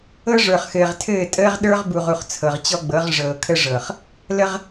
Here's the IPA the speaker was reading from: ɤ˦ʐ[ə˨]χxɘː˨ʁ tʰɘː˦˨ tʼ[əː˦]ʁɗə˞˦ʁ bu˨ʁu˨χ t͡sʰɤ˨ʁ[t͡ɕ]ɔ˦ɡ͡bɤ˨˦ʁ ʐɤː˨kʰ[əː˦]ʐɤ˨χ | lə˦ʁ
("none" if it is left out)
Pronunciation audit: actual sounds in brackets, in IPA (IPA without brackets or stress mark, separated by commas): ə˞˨, əː˦, t͡ɕ, ə˦